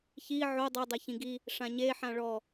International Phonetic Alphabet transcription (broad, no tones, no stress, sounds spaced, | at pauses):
ç i ʕ o dˤ o dˤ ɛ ç ĩ ɡ i | ʂ ã ɲ e ħ ã ɭ ɔ